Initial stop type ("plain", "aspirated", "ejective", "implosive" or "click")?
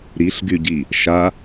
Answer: plain